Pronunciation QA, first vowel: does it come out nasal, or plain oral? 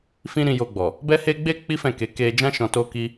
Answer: nasal